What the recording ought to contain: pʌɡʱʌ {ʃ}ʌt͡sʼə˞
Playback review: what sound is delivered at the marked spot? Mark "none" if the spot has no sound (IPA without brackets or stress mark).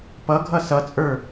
s